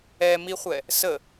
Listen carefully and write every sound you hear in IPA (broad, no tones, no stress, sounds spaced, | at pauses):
ɛ m i χʷ ɛ | s ə